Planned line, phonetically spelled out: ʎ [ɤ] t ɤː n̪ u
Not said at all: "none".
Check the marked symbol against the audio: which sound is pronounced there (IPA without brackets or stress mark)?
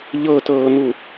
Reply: ɤ